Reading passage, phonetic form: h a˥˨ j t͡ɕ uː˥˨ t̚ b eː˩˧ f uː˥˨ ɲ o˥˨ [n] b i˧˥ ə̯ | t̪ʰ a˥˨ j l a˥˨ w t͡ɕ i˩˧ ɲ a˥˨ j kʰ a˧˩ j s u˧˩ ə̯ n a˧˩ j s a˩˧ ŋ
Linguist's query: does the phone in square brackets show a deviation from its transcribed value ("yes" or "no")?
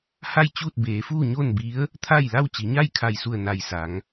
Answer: no